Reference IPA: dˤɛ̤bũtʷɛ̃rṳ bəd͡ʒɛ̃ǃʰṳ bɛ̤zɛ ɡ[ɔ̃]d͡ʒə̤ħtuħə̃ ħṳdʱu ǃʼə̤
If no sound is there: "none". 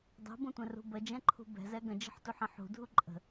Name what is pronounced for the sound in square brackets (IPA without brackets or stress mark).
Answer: ə̃